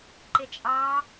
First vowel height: high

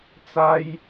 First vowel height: low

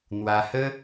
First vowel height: low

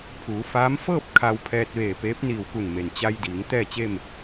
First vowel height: high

